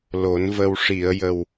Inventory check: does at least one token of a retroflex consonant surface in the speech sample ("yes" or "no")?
yes